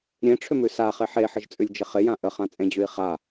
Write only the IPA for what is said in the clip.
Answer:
ɾʲẽʈ͡ʂʰʏmʉ saχe ħeħəʒt͡sʼʉlʲd͡ʒɪ χɪjã ʔəχãt͡sʼẽd͡ʑʉi̯ χa

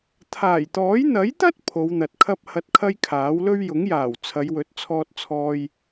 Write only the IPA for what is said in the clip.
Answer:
t̪ʰaː˨˩jt̪ɔː˨˥j n̪ɐ˨˥jt̪ɐ˥t̚ pʰo˨˧wn̪ɐ˨t̚kʰɐ˥p̚ hɐ˧t̚kʰɐ˥jkʰaː˨˥wlɵ˥ɥ jʊ˨˥ŋjaː˨˩w t͡sʰɐ˨˧jwɵ˨˥t̚ t͡sʰɔː˧t̚t͡sʰɔː˧j

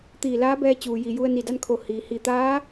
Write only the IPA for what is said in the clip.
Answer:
t̪iː˧˩laː˧˥bɛː˧ t͡ɕuː˩ji˩ju˧ə̯ ni˧˩da˥˨nkʰo˧˩ hiː˩hi˧˩t̪aː˧˥

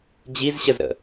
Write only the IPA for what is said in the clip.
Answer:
d͡ʑizɕəzɾə̰

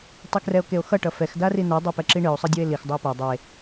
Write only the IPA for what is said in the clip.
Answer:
tˤekrɛo̯keo̯xʌ ʈʌfɛx darinɛ dˤopɛǁiɳɯo̯ sˤɯdʲoe̯lix dˤue̯pa dˤe

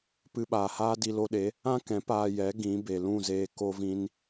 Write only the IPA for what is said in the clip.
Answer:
pɨ˧ɓaː˨haː˦ di˧lo˧ɗe˨˦ | ã˦kɛ̃˨˦ paː˧jɛ˨˦ ɡĩ˨˦ be˨lũ˦˨zeː˧ ko˦vĩ˦n

